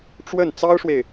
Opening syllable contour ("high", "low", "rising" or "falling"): falling